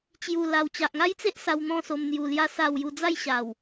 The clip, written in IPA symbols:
t͡ɕju˨˩ la˨˩wt͡ɕa˨ʔŋa˦jt͡se˦ʔ sa˧wn̪ɔ̃˥˧so˧m n̪ju˧lja˦sa˥˧wju˥˧ d͡za˥˧jɕa˨˩w

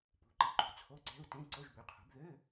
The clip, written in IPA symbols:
pṳ˩˥ǃi˩˥ǃṳ˩˥ t͡sʰo˧˥˧ǀɛ̤˧˥˧u̯ tẽ˧˥˧ ǀo˧˥˧ʒbø˩˥qʰṳ˩˥b ðø˧˥˧

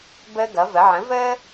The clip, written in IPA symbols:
bəː˦ɡʌ˩˥və˩˥ ʕə̃˩˥vəː˦

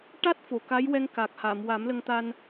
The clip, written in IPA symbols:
ʈa˦˥t̚ fo˨˩˨ka˧˥jwɛ˧ŋka˨˩k̚ ha˨˩˨m wa˨˩˦mlə˧ŋt̪a˧n

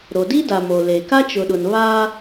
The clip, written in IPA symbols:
ɾo˨di˦da˨ mo˨ le˨ ka˦t͡ʃʊ˨ɗʊ˨n βa˦

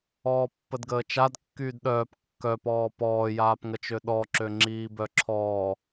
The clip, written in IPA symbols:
ɔːpːədɡəːt͡ʃad kːyːdɗœːp kːœpɔː pɔːjaːpŋət͡ʃø ɗɔǁøŋ͡ǁiː bœǁʰɔː

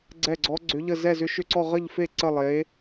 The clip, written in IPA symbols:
ɡ͡ǀɛ˥˧ɡ͡ǀɔ˦˥ɡ͡ǀʏ˦˥ʎə˥˧ zɛ˥˧zʏ˦˥ʃʏ˥˧ǀɔ˥˧ ʁə˥˧ʎfe˥˧ ǀə˥˧lˠe˦˥

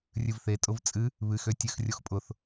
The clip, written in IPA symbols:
rʲɨvθe tʼʊvt͡sʼɨ | βɨxø tʲɨx rʲoxpʼʊθ

